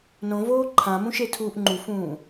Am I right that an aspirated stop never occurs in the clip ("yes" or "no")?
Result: no